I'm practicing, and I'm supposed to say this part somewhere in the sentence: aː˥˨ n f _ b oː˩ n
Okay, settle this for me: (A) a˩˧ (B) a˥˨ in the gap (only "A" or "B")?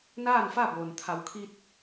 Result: B